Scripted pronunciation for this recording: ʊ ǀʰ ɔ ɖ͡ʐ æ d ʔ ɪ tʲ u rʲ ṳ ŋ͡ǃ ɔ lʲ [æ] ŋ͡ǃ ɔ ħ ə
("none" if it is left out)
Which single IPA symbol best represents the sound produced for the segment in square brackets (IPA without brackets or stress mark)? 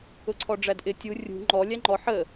æ